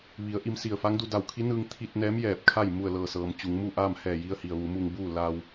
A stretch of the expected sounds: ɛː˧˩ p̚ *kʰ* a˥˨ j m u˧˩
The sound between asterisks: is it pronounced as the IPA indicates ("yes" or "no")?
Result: yes